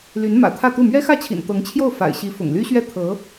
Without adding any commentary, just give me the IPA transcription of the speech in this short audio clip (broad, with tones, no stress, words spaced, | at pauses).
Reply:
ly˧˥n mä̰˨˩t̪ʰä˥˧t̪u˥˩ mɥɛ˥xä˥˩t͡ɕʰḭ˨˩n t̪ɤ˧˥ŋt͡ɕʰjo˥˩ʊ̯ fa̰˨˩ɪ̯ɕi˧˥ fʊ̰˨˩ŋly˥ɕɥɛ˥˩ t̪ʰɤ˧˥